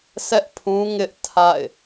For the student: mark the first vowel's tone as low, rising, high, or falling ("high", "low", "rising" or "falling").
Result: high